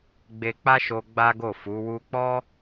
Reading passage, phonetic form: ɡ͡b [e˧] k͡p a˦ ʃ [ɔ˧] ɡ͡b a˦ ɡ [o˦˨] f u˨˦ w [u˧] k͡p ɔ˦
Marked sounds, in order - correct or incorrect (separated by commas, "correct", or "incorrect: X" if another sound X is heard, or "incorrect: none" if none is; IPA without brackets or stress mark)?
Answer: correct, incorrect: o˧, correct, correct